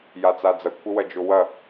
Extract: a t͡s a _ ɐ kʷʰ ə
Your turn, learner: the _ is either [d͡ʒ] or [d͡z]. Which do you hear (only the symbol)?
d͡z